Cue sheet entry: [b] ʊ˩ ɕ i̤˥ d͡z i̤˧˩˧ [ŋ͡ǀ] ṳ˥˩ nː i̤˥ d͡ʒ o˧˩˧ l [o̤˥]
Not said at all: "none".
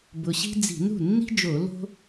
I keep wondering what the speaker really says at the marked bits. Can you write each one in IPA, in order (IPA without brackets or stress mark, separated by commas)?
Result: b, n, o̤˥